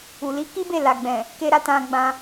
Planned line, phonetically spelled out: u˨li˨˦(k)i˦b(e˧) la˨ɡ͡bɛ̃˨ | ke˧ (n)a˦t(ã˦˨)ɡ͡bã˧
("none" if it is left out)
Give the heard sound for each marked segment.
k, e˦˨, ɾ, ã˧

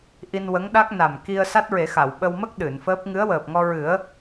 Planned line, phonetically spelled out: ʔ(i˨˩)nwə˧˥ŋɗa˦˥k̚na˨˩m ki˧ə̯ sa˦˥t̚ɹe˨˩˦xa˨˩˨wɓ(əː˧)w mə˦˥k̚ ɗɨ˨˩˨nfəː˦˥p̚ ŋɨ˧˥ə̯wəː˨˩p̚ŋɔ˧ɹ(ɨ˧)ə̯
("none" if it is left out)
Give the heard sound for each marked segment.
i˧, ə˧, ɨ˨˩˦

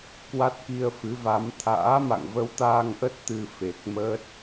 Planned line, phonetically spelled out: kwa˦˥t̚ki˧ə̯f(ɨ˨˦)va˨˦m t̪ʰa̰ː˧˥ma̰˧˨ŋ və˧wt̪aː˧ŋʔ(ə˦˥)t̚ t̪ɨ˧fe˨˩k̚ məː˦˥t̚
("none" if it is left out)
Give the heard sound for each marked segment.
ɨ˨˦, ə˦˥

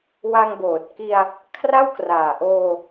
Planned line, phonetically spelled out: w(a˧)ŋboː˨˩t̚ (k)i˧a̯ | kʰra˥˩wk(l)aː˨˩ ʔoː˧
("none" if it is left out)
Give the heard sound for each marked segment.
a˧, k, r

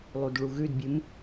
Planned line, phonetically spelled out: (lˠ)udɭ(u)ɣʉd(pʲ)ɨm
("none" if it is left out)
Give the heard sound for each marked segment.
lˠ, u, bʲ

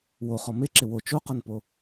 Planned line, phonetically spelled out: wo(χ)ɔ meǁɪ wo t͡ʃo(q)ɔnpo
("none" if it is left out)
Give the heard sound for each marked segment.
χ, q

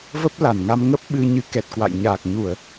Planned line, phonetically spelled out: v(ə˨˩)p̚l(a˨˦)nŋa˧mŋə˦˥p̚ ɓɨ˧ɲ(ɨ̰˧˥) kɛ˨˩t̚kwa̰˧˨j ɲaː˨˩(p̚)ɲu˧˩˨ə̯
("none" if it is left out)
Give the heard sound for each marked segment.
ə˦˥, a˧˩, ɨ˨˦, k̚

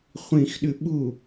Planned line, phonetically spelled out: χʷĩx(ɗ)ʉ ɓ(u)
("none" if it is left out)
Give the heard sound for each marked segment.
ɗ, u

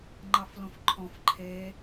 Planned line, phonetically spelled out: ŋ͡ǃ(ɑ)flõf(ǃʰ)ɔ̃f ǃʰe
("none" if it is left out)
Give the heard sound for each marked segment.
ɑ, ǃʰ

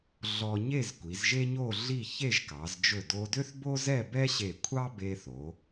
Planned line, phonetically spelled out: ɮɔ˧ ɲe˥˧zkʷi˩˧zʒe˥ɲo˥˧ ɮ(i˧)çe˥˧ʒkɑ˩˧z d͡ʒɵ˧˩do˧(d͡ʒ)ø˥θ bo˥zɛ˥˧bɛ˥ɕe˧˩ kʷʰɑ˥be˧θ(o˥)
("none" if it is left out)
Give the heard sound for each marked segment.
i˥˧, d, o˩˧

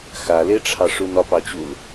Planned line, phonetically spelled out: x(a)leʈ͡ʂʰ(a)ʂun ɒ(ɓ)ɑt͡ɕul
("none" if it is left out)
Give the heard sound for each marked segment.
a, ɑ, p

